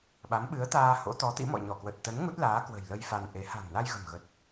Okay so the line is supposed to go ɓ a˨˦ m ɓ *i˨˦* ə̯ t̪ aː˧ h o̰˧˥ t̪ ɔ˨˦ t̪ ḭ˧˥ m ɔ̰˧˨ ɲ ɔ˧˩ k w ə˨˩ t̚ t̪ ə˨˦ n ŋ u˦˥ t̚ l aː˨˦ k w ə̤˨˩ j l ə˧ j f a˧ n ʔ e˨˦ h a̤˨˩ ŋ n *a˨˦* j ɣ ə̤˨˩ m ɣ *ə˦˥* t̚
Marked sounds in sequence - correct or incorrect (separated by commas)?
incorrect, incorrect, incorrect